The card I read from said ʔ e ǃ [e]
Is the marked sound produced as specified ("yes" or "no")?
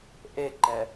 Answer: no